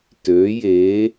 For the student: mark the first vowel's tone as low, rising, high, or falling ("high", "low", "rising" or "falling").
rising